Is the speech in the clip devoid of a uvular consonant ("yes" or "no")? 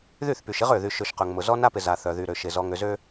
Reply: no